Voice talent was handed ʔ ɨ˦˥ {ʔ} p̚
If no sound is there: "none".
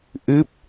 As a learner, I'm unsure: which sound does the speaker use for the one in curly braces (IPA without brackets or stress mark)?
none